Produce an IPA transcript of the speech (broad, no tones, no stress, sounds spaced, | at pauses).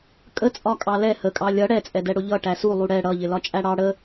kʼ ə t͡sʼ ɒ kʼ ɑ l ɛ h ə kʼ ɑ lʲ ʌ ɽ ɛ t͡sʼ ɛ d ɛ ɽ ʊ ʎ ʌ ʈ æ s u lˠ u ɽ ɛ ɽ ʌ ʎ ɪ l ɒ t͡ʃʼ æ ɽ ɑ ɽ ə